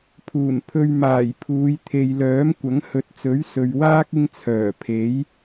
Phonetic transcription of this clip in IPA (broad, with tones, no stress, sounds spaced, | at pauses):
pʰ uː˨˩ n pʰ ɵ˧ ɥ m aː˨˩ j pʰ uː˨˧ j t̪ʰ e˨ j l œː˨˥ m kʷ ɐ˨˥ ŋ h ɵ˨˥ t̚ t͡s ɵ˨˥ ɥ s ɵ˨ ɥ w aː˥ k̚ ɪ˥ ŋ t͡sʰ œː˨˩ pʰ e˨˥ j